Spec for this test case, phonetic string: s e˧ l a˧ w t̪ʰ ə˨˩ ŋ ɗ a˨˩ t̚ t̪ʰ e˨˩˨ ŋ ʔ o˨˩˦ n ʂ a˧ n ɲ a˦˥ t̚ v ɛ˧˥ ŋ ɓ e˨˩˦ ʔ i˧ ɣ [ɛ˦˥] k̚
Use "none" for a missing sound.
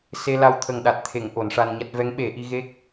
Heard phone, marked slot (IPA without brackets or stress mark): e˦˥